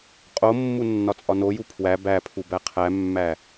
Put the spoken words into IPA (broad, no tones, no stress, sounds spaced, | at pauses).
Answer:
qʼ o mː u nː ɒ t͡sʼ ɒ n o j u pʰ w æ b æ pʰ u b æ qʰ æ mː æ